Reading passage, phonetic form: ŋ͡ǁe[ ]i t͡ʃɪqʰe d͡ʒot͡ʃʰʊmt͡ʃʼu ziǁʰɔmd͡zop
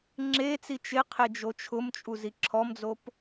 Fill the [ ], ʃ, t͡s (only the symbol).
t͡s